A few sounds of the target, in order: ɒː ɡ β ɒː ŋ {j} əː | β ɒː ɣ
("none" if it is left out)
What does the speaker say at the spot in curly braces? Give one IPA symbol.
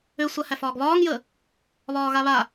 j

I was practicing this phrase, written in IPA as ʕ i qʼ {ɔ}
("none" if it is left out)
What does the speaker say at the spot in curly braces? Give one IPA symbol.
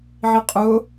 ʊ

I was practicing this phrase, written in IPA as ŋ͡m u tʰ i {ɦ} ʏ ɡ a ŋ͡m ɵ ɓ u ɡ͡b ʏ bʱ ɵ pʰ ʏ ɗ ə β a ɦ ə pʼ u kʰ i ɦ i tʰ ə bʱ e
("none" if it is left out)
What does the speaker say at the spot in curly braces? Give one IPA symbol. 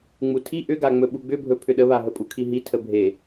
ʔ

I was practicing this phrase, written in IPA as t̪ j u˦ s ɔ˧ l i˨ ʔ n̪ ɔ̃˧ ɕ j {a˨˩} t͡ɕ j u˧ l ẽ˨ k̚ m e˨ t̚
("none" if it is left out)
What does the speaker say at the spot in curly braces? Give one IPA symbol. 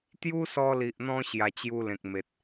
a˨˩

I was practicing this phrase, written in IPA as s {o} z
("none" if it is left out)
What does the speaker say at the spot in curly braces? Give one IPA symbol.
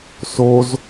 o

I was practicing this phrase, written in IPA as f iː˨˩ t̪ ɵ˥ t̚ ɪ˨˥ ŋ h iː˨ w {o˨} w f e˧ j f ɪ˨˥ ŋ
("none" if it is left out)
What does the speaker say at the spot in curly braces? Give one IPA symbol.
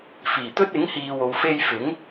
o˨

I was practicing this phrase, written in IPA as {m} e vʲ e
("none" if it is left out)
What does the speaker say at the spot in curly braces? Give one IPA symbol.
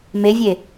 m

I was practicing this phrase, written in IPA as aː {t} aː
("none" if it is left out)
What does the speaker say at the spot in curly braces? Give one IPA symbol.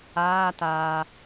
t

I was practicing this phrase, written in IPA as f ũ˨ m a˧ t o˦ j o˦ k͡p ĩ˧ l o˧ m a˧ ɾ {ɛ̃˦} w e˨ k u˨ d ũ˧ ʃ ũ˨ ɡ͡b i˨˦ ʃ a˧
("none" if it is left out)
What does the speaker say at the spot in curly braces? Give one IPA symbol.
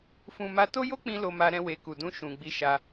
ɛ̃˧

